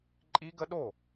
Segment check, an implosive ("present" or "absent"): present